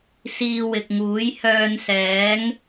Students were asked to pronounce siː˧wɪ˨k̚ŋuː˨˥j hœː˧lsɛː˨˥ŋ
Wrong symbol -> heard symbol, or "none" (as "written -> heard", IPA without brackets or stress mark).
l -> n